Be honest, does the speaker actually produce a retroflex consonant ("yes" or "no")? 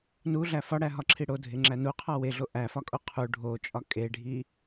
yes